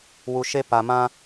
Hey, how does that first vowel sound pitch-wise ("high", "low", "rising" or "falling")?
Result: low